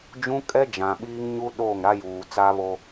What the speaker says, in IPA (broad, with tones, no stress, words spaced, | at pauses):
d͡ʒũ˦kʼɛ˦d͡ʒã˨ ɓiː˦ŋɲu˦ ɗoː˦˨ŋɾa˦juː˨ t͡sa˦βo˦